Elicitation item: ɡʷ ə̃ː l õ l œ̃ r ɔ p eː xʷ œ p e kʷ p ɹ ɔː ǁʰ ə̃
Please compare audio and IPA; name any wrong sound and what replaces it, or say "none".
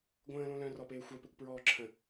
none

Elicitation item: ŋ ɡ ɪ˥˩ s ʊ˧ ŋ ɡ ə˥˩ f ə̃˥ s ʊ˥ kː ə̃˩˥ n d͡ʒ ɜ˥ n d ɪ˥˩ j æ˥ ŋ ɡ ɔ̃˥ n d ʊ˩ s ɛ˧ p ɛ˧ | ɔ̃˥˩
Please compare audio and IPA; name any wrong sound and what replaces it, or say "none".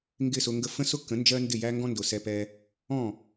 none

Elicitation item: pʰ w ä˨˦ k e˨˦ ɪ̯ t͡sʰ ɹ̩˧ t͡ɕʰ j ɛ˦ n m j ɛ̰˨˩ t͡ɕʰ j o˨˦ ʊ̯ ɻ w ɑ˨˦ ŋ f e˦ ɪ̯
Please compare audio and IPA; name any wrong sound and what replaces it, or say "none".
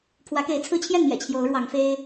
ɛ˦ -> ɛ˥˨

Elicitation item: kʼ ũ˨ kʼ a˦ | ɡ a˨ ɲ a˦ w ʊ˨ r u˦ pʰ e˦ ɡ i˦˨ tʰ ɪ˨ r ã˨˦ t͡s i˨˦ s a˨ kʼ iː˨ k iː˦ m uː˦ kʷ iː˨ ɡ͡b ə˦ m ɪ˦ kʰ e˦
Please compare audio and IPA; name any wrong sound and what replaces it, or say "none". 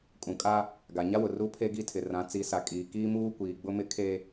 ə˦ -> ʊ˦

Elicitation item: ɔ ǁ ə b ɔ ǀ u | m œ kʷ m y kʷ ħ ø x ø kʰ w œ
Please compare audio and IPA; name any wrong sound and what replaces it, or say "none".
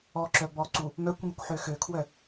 ə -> œ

